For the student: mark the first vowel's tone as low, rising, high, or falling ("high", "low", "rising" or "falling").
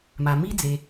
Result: low